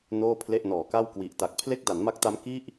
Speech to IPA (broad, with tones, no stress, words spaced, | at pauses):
noː˥˩pʰle˥˩ʔ nɔː˩˦ka˥˩w kwi˨˩ʔta˨˩k̚ pʰle˥˩k̚ da˩˦nma˦˥k̚ta˦˥m ki˥˩ʔ